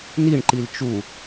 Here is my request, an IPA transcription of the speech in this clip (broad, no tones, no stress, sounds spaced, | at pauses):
n i ɳ ǃ i l t͡ʃ u